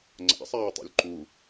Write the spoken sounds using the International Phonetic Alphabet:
ŋ͡ǀ a̰ sˤ aː tˤ ṵ lʲ ǃ u

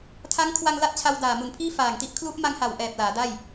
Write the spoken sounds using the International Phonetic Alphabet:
tʰ a˦˥ ŋ kʰ w a˧ ŋ l a˦˥ t̚ t͡ɕʰ a˧ w d aː˨˩ m u˨˩ n pʰ iː˥˩ f aː˨˩ ŋ t i˦˥ ʔ kʰ l u˦˥ ʔ m a˧ ŋ h a˨˩ w ʔ ɛː˨˩ p̚ l aː˩˦ d a˥˩ j

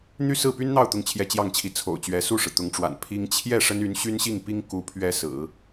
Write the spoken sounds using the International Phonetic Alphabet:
n̪ y˥˧ s ɹ̩˥˩ p y˥ n n̪ ɑ˥˧ ʊ̯ t̪ ʊ˥˧ ŋ t͡ɕʰ j ɛ˥˧ t͡ɕ j ɑ˥˩ ŋ t͡ɕʰ i˧˥ t͡sʰ o̰˨˩ ʊ̯ t͡ɕ ɥ ɛ˧˥ s u˥˩ ʂ ɻ̩˩ t̪ ʊ˧˥ ŋ ʈ͡ʂ w a̰˨˩ n pʰ i˥ ŋ t͡ɕʰ j ɛ˥˩ ʂ ə˥ n y˧˥ n ɕ y˥ n ɕ i˥˩ ŋ p i˥ ŋ k u˧˥ pʰ ɥ ɛ˧˥ s ɹ̩˨˩˦

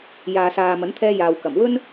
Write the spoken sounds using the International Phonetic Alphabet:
j aː˨ s aː˨ m ɐ˨˥ n t̪ʰ ɛː˥ j aː˨ w k ɐ˨˩ m w ɵ˥ n

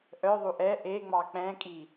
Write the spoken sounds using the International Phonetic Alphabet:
ʔ œ ðˤ u ʔ ɛ ʔ e ŋ͡m ɑ k͡p ɛ̃ kʼ i

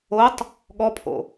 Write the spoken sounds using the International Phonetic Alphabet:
o tˤ | ɠ ɔ pʰ o̰

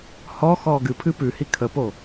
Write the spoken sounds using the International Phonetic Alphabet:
h ɔ x ɔː ɡ ɨ pʰ ɨ p ʉ h i kʰ ə p o

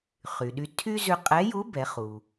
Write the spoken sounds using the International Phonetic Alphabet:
χ y˩ ɗ y˧ tʰ y˥ z ʉ˧ qʼ ɛ˧˥ j u˧˥ b ɛ˩˧ χ u˩

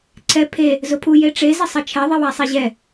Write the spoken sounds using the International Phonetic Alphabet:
ǀʰ ɛ pʰ e | z ʊ pʰ u j e ʈ͡ʂ e z ɪ sˤ ɛ t͡ʃʰ ɛ ðˤ i w a sˤ i ʑ ɛ

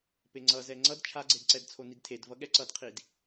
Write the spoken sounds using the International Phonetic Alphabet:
p e ŋ͡ǀ ʌ z ɛ ŋ͡ǀ ʌ d t͡ʃʰ a ɡ͡ǀ e d ǀ ɛ d t͡sʰ o n i d tʰ e d v ʌ ɠ ɛ ǀ ʌ d qʰ i d

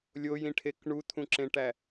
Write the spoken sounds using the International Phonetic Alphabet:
lʲ o j ĩ ʈʰ e k ɳ u t̪ʰ ũ ǁ ẽ ʈ æ

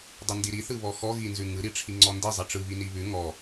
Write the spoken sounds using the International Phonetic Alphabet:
dˤ ɯ n d i ɾ i θ ɯ β ɔ x ɔ ɣ i n z ʉ ŋ ɯ ɾ i ʈ͡ʂʰ i ŋ͡ǀ ɔ n d i zˤ i ʈ͡ʂ ɯ β i n i β ʉ ŋ ɔ

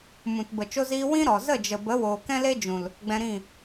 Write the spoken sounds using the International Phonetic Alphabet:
m ũ˨ t b ə˨ t͡ʃ o˧ z iː˧ w ĩ˦ ɾ ɔ˨ z ə˦˨ d͡ʒ ə˨ b ə˨˦ w oː˨ k ɛ̃˦ l e˦ d͡ʒ ũ˨ l | ɡ͡b ɛ̃˧ ɾ ĩ˦˨

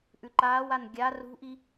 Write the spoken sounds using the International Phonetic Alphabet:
ʔ ʉ ǃ aː w a n ɡʲ a r ṳ ʔ i

